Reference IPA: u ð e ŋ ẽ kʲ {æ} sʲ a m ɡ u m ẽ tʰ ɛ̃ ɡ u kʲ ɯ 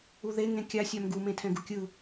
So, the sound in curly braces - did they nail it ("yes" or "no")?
no